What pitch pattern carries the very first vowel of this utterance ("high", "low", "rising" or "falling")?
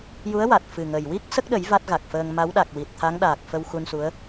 rising